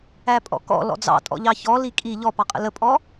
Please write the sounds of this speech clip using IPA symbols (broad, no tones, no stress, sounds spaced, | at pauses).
æ pʼ ɔ̰ k ɔ̰ l ɔ̰ d͡z ɑ̰ tʼ ɔ̰ ʎ ɑ ç ɔ l i kʼ i ʎ ɔ p ɑ qʼ ə̰ l ə pʼ ɔ